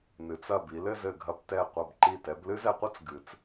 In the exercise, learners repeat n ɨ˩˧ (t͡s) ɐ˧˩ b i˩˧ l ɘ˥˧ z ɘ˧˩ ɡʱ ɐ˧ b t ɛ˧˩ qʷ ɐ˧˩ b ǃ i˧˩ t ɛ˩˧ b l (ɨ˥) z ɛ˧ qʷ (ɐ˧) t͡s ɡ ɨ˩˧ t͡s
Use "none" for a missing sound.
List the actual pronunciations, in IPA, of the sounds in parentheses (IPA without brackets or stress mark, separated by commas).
t͡s, ɨ˥, ɐ˥